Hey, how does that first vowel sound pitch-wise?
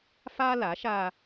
high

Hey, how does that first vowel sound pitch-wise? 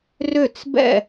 falling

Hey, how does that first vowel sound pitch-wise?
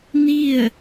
falling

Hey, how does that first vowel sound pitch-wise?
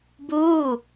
falling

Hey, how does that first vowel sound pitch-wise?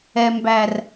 low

